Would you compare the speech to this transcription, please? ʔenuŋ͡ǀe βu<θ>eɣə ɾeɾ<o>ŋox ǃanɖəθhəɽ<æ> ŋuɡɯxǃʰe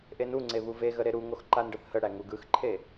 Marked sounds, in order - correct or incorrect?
incorrect, incorrect, correct

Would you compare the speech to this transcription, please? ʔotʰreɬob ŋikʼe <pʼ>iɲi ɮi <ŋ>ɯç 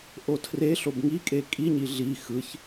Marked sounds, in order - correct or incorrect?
incorrect, incorrect

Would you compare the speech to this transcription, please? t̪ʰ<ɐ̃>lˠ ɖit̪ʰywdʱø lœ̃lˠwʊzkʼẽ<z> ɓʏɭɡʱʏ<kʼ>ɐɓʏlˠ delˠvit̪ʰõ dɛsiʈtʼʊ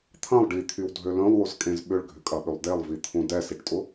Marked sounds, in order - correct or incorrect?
correct, correct, correct

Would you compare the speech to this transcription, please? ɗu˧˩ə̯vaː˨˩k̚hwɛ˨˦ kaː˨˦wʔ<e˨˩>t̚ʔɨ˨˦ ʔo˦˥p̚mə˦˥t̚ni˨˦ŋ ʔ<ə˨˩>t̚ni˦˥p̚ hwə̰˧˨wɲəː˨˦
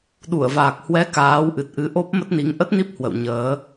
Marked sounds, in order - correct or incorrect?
incorrect, incorrect

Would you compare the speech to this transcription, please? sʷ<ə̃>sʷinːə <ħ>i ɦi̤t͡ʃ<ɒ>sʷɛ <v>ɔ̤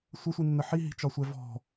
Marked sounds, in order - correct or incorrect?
incorrect, correct, correct, correct

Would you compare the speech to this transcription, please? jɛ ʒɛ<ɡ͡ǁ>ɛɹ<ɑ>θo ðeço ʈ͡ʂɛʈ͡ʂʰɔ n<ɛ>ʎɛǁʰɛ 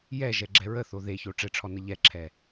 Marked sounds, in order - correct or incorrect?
correct, incorrect, incorrect

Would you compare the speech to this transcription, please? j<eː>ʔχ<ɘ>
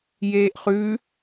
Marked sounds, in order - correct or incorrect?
correct, incorrect

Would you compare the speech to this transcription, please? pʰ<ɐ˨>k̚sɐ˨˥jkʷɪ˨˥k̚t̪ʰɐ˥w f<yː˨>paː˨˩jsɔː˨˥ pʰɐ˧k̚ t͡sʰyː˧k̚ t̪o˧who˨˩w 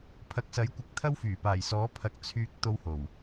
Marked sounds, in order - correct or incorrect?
incorrect, incorrect

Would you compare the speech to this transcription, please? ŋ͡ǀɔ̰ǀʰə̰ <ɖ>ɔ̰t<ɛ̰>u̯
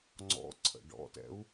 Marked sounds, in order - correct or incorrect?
correct, correct

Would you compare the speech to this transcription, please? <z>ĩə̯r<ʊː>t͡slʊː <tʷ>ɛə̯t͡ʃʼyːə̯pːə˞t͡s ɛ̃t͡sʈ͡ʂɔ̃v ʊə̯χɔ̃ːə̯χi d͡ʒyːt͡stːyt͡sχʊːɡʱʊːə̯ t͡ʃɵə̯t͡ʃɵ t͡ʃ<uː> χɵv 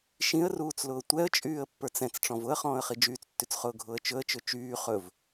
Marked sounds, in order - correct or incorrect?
incorrect, incorrect, correct, incorrect

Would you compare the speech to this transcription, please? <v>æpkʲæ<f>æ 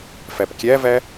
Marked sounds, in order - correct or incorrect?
incorrect, incorrect

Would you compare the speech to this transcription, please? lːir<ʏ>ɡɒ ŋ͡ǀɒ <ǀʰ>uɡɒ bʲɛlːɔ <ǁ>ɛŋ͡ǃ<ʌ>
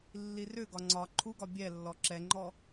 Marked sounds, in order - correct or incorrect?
correct, incorrect, correct, incorrect

